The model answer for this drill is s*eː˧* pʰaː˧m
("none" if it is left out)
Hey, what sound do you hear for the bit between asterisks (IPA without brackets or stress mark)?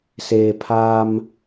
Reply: eː˧